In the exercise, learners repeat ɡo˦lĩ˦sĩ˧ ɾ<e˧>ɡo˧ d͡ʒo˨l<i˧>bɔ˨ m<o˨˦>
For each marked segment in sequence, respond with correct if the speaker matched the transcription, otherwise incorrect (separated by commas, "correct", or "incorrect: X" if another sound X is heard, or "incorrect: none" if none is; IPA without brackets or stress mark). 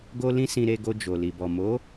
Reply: correct, incorrect: i˨, correct